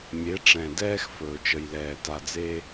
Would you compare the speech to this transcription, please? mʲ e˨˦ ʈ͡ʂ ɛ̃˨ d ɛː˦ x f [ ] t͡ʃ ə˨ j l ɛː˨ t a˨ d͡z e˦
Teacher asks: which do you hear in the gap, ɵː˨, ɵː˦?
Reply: ɵː˨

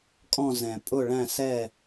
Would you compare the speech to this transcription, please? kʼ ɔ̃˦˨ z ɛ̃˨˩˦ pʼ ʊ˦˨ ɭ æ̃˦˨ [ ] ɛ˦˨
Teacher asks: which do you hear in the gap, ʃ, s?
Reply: s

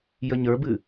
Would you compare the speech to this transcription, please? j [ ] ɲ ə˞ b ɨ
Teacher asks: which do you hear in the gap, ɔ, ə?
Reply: ə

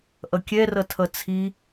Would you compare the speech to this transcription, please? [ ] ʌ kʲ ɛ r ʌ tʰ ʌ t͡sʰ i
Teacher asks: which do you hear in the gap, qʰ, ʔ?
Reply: ʔ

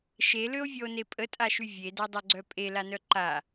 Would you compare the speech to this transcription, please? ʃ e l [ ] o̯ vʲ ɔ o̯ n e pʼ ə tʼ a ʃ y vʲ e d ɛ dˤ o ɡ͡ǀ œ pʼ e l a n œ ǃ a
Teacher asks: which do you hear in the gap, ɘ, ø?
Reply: ø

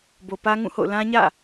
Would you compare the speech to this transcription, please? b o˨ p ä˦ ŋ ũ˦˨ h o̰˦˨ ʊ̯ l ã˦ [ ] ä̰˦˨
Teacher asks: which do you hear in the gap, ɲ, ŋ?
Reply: ɲ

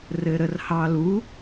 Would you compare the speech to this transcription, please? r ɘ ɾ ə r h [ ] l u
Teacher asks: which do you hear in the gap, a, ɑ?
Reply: ɑ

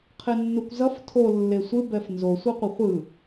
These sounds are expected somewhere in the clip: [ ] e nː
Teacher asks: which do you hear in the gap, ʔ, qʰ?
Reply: qʰ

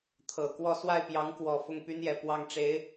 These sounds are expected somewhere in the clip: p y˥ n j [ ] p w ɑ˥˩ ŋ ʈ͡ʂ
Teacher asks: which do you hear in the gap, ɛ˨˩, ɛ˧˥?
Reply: ɛ˨˩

